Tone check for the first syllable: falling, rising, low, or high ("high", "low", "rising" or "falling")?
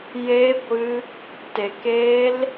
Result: high